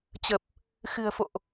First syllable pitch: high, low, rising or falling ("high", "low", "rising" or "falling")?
low